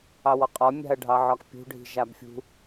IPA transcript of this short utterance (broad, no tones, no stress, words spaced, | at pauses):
ɑwɔqʼɒ mʲa̤ɐ̯ɖʱɑʕɒkpʲṳ ɖʱi̤ʒabfʲṳ